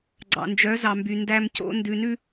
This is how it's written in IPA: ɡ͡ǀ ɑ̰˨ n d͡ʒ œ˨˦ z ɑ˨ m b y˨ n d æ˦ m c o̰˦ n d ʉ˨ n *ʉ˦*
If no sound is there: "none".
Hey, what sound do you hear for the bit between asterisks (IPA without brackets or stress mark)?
ʉ˦